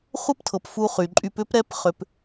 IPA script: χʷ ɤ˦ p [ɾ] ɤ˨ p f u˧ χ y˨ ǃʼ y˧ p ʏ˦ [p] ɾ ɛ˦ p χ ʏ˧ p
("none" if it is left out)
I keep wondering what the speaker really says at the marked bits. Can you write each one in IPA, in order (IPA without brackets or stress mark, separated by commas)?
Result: tʰ, p